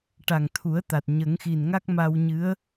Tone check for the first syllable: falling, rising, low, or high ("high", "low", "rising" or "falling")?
low